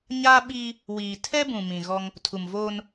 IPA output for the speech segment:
ɲaː˦ɓiː˦ | wiː˨tʰɛ˦bũ˨ mĩ˨ɣɔ˦ŋ | tʰu˨mvoː˦n

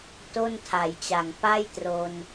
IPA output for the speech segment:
to˥˩ntʰa˩˦jt͡ɕa˨˩ŋ pa˥˩j tro˧n

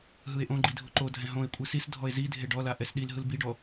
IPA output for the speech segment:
ɦɯe̯ʔõɡ͡ǃi dʱoǃodʱɛ̃ ɦõe̯kʷʼɯ sisdʱɔe̯ zidʱe ɖɔla ʔɛsɗilɦɯl biɖɔ

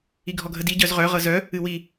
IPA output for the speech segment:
iɡʱɔɡʱədi ɟœzʁœ ʁɤzœ | ɨwi

